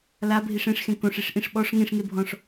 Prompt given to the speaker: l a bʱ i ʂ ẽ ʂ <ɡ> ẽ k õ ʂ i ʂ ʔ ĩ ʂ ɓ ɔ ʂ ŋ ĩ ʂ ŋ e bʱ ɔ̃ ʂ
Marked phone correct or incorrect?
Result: incorrect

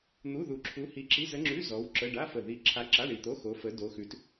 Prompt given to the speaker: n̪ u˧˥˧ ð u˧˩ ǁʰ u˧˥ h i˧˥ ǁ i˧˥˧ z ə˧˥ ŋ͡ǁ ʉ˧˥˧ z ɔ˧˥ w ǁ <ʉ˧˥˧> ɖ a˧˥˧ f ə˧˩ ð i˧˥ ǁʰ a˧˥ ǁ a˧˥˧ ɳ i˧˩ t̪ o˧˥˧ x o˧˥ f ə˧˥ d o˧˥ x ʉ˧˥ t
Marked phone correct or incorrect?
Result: incorrect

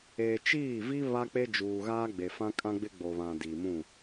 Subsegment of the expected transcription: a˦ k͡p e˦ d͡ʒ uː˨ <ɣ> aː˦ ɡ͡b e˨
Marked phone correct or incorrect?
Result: correct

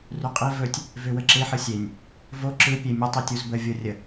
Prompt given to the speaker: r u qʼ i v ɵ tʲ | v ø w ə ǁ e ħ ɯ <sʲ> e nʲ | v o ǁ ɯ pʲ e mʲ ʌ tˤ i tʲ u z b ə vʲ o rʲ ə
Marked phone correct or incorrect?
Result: correct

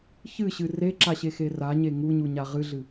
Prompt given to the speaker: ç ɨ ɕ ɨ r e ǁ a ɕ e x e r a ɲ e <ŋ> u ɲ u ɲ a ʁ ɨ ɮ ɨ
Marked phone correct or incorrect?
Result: correct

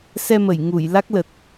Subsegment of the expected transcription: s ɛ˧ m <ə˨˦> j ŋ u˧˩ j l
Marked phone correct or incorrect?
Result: incorrect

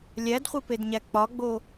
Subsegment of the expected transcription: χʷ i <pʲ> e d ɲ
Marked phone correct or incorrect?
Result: incorrect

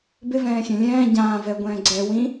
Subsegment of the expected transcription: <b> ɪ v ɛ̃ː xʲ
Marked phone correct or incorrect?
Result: correct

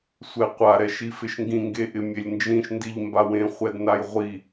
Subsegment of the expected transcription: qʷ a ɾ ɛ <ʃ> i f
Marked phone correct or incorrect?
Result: correct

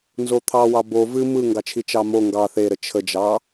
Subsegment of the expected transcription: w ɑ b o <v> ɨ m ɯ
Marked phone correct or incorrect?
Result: correct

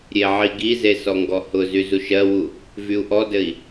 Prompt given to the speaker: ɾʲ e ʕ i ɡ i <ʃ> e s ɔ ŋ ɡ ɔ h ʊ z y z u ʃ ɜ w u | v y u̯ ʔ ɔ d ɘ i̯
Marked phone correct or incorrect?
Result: incorrect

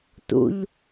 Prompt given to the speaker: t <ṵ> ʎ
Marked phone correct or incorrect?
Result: correct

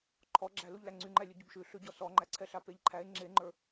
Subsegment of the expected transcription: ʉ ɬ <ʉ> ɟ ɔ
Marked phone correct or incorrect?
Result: correct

